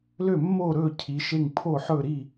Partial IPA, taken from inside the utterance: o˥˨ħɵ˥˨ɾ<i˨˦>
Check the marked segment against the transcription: incorrect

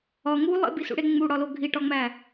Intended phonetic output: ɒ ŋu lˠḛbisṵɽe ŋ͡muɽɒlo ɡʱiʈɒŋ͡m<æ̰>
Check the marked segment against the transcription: incorrect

